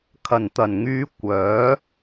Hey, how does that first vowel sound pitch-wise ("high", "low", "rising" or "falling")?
low